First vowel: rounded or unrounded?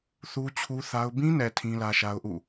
rounded